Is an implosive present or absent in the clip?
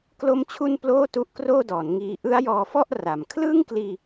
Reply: absent